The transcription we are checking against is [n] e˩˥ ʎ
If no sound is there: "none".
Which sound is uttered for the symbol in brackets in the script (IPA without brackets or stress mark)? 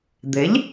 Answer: d̪